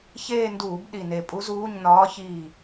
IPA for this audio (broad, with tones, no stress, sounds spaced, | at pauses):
ç eː˦˨ n d uː˧˩˧ b ɗ i˨˩ n e˨˩ pʼ u˧˥ z uː˧˥˧ ɲ n ɒː˧˥ ç iː˦˨